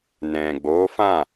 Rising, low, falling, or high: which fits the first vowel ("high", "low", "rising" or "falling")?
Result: low